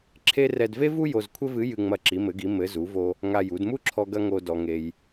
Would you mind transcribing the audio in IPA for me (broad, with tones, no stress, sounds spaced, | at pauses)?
ǁʰ e˥ r ɛ˧ d v e˥ v u˥ j o˧ z kʷʰ ɘ˥ v ɨ˧˥ j ɨ˧ ŋ͡m ɐ˧ ǁ i˩˧ m ɘ˩˧ ɡ i˩˧ m ɘ˩˧ z u˩˧ v o˧ | ŋ a˧ j u˩˧ d m u˥ ǁʰ ɔ˧ ɡ ɐ˧ ŋ o˧ d ɔ˩ ŋ e˩ j